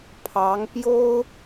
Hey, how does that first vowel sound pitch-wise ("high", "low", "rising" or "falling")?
rising